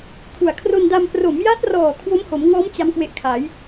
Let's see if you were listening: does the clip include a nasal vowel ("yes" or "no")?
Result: no